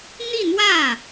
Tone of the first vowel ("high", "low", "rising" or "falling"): falling